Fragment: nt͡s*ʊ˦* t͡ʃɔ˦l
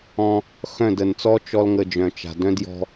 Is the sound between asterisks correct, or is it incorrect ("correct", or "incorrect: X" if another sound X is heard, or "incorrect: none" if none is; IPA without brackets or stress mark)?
incorrect: ɔ˦